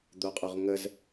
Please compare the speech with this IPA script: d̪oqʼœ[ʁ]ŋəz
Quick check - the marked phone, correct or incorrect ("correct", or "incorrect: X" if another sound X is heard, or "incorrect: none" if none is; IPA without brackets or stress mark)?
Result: correct